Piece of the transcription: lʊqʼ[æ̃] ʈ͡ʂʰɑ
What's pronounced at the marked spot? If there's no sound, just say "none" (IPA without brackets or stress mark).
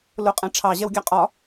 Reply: æ̃